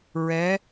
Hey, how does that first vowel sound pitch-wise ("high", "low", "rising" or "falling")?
rising